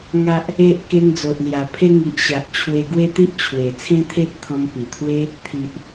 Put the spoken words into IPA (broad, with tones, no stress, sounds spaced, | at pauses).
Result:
ŋ a˨ ʔ | e˨ ʔ k e˧ ŋ d͡z o˨ ʔ l j a˨˩ pʰ e˦ ŋ i˨ ʔ ɕ a˨ ʔ t͡ɕʰ w e˧ ɡ w e˦ t̪ i˦ ʔ t͡ɕʰ w e˨˩ t͡sʰ ẽ˦ t̪ʰ e˦ t̚ t̪ʰ ɔ̃˧ m p i˨˩ t̪ʰ w e˦ | t̪ʰ i˨ ʔ